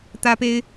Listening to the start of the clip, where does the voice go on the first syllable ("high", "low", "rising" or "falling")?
high